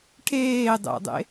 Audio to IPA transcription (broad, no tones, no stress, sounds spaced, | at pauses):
ʈʰ eː dˤ ɛ̰ dˤ ḛ